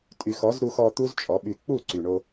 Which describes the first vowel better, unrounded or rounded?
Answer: rounded